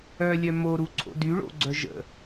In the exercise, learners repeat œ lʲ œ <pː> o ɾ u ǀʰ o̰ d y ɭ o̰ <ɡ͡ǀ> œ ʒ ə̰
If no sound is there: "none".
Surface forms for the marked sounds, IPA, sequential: m, ɡ͡ǀ

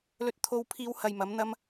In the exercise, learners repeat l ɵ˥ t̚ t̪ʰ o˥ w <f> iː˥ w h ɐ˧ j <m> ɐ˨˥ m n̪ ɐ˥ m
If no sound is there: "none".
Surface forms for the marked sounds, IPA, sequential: pʰ, m

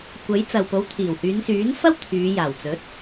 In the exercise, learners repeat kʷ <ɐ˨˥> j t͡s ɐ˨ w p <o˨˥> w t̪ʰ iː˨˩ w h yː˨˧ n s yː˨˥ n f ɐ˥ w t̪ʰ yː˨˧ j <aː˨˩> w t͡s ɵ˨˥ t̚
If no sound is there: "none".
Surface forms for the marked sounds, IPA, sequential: ɐ˨˥, o˨˥, aː˨˩

